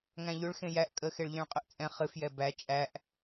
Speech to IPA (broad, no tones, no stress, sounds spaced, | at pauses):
ŋ æ̃ ʎ ʏ ɭ x ẽ j æ ʔ kʼ ə x e ɭ ʎ ɛ̃ ɭ qʼ ʏ ʔ t͡sʼ ɛ̃ χ ɨ f j ɛ b æ t͡ʃʼ æ ʔ